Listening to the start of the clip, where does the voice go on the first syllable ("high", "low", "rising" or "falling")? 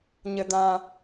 low